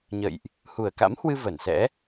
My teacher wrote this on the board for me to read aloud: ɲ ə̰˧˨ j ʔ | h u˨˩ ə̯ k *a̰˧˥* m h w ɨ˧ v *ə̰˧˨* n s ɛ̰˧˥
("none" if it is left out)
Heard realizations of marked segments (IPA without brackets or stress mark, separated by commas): a̰˧˥, ə˧˩